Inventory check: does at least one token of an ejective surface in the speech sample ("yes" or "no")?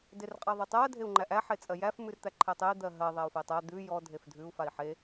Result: yes